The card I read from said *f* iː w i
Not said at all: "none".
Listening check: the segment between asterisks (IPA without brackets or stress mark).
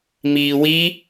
m